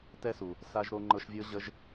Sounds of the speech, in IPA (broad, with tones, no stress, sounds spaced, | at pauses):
t ɛ˦ s u˨ | s a˧ ʒ ɾ o˧ ŋ͡ǃ ɤ˧ ʃ vʲ ɤ˦ ʑ ə˦ ʒ